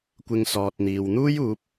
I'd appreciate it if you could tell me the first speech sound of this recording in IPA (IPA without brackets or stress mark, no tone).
kʷ